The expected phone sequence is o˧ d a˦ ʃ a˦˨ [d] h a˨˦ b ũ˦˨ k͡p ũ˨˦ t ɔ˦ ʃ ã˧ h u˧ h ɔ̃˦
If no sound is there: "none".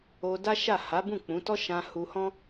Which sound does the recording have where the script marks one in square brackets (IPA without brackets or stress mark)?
none